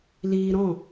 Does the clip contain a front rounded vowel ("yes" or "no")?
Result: no